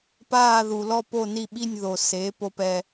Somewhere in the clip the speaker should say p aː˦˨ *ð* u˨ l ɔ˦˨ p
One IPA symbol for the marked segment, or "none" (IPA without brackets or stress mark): ð